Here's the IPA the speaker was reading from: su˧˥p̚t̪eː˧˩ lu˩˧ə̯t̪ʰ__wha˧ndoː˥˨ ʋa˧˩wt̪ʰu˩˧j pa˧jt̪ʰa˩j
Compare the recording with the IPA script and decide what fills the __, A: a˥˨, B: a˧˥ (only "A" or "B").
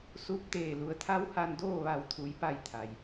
B